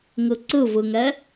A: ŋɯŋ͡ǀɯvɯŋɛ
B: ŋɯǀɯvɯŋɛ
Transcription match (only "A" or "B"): B